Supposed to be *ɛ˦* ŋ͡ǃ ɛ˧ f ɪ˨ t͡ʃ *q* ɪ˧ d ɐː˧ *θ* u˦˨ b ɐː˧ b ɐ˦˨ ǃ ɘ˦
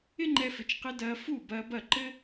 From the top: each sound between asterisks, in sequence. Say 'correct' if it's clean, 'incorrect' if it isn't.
incorrect: ɪ˦, correct, incorrect: f

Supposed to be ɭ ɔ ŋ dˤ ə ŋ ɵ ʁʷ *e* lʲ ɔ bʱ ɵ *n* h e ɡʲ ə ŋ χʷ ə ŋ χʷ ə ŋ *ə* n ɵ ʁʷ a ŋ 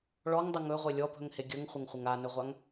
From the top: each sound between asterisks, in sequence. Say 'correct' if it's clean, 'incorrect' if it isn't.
correct, incorrect: ŋ, incorrect: a

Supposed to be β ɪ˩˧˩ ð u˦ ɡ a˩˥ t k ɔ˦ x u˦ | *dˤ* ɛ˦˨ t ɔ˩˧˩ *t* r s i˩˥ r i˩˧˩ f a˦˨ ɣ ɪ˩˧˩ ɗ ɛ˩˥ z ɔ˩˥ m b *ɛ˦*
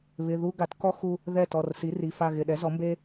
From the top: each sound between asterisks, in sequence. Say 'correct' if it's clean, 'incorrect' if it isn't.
incorrect: ð, incorrect: none, incorrect: e˦

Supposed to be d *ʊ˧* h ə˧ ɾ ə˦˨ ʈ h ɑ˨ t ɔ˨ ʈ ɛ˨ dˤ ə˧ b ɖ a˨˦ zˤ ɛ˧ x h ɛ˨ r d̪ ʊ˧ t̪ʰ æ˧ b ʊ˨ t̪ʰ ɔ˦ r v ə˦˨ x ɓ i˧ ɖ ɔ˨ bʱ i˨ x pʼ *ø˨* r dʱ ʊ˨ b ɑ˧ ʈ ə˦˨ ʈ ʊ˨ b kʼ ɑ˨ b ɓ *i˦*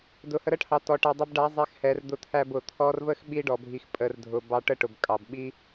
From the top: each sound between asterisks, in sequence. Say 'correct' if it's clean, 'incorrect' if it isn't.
incorrect: ʊ˨, incorrect: ə˨, correct

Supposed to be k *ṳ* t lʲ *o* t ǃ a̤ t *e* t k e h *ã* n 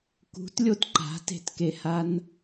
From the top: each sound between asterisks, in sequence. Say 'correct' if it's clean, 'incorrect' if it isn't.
correct, correct, incorrect: e̤, incorrect: a

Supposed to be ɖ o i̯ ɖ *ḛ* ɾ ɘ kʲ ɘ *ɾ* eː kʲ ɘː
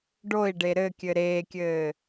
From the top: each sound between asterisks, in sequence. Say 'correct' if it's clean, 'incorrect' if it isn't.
incorrect: e, correct

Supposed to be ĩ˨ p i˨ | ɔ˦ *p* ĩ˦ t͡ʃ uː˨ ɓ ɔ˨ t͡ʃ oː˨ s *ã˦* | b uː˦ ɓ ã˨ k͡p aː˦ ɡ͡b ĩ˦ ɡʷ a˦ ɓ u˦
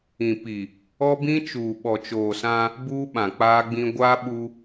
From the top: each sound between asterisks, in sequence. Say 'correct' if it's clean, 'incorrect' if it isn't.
incorrect: b, correct

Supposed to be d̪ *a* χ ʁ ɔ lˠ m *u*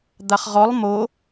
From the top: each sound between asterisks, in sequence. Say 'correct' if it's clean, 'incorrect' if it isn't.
correct, incorrect: o

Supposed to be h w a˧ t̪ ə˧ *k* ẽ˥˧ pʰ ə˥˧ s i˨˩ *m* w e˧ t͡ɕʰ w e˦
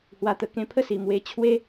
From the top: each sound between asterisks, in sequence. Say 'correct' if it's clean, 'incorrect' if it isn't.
correct, correct

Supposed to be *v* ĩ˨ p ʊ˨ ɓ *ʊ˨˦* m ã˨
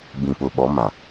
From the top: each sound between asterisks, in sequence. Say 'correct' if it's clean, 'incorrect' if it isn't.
incorrect: b, incorrect: ɔ˨˦

